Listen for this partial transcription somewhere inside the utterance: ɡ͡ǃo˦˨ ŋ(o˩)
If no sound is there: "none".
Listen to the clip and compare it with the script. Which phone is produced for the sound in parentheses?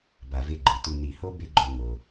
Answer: o˩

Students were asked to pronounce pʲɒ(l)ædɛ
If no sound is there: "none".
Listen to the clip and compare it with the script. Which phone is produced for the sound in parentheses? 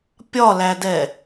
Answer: l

